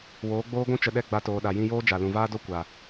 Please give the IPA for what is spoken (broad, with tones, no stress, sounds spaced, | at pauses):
w oː˨˦ ɡ͡b oː˦ ɡʷ ũ˦ t͡ʃ ə˧ ɗ ɛ˦˨ ɡ͡b a˧ t oː˨ ɗ a˨ j ĩ˧ j oː˦ d͡ʒ a˨ l ũ˨ v aː˦ d o˦ kʷ a˨